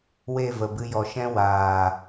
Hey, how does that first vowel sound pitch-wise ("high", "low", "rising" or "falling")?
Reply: falling